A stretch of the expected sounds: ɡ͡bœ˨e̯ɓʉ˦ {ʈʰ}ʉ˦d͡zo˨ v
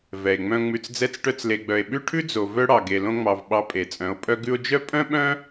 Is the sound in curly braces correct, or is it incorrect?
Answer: correct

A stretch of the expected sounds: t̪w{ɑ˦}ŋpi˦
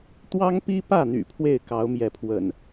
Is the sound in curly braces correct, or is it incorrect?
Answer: correct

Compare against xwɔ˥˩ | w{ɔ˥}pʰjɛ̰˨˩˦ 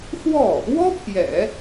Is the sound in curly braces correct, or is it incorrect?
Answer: correct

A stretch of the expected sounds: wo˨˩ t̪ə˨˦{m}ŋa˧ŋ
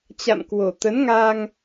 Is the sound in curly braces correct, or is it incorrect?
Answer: incorrect: n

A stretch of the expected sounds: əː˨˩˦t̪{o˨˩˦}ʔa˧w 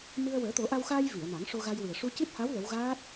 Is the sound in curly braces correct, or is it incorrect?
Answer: correct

